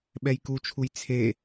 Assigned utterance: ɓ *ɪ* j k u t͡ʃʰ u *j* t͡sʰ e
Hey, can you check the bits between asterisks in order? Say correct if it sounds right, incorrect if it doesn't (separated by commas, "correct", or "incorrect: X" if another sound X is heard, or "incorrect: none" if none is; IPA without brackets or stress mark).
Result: incorrect: ɛ, correct